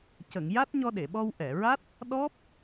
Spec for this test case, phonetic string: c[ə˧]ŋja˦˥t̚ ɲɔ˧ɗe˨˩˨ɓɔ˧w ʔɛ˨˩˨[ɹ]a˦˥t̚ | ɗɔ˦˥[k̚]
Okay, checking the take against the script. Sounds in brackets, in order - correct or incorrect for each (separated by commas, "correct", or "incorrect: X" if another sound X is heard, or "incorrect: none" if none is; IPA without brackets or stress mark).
incorrect: ə˨˩˨, correct, incorrect: p̚